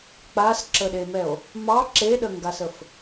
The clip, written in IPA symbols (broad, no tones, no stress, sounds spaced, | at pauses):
k͡p a s ǁ ə ɗ e m ɛ o̯ | m ɑ ǁ e ɗ ə ŋ ɡ a s ə f